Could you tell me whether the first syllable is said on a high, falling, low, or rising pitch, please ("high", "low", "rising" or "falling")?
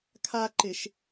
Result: high